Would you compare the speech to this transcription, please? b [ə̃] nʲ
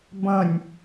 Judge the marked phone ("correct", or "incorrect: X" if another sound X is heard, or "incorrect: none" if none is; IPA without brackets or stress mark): correct